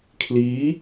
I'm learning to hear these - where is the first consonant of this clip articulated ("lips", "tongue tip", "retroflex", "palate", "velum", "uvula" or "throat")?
velum